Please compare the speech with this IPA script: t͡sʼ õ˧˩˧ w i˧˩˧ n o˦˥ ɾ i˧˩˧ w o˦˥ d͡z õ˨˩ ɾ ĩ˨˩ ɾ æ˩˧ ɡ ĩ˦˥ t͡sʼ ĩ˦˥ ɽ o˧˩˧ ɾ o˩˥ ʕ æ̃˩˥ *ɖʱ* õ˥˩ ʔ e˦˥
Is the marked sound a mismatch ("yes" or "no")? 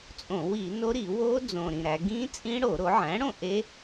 yes